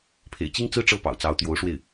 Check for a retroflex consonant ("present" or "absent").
present